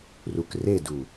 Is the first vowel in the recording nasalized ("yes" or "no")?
no